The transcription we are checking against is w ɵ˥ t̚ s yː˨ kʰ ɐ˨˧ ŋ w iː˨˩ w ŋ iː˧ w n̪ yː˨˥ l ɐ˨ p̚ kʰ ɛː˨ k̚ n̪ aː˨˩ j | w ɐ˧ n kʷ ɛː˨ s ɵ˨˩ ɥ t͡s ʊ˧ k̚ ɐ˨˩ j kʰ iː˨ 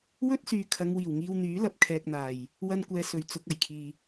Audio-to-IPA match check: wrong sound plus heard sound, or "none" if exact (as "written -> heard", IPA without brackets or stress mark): ʊ˧ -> ʊ˨